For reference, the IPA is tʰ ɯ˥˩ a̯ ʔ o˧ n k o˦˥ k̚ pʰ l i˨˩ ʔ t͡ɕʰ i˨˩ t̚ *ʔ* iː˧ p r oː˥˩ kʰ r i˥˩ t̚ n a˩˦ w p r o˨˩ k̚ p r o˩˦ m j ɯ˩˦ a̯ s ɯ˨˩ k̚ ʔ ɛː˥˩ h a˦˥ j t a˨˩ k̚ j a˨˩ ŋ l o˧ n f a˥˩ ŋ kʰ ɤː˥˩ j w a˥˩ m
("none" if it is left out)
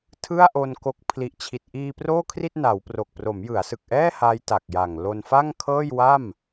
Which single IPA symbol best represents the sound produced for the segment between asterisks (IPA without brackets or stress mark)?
ʔ